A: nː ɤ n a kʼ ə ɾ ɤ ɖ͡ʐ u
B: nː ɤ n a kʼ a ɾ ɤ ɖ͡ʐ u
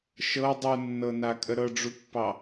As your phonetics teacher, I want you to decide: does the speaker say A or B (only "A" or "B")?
A